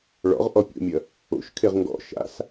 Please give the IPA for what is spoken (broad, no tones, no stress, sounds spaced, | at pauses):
ɭ ɔ̰ ʁ ʔ ɔ pʲ o̰ mʲ ɐ | o̰ ʃ kʰ e ʁ ŋ ɡ ɔ̰ ʃ a̰ s